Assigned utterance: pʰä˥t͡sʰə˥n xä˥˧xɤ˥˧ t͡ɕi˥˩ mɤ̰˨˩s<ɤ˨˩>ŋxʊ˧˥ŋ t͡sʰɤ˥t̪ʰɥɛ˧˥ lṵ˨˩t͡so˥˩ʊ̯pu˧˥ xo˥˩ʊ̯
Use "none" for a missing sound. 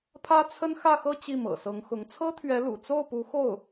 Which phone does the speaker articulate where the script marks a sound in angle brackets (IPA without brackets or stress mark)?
ɤ˧˥